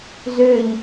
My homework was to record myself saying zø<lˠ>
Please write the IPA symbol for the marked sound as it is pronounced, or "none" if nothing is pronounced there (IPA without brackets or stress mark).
ʎ